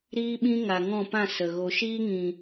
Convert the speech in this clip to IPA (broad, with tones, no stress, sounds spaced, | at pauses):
ɾ iː˦ ɓ ĩ˦ ŋ a˨ ŋ ɔ̃˦˨ p ã˦˨ s ə˨ ɣ o˨ ʃ iː˦ ŋ ĩ˨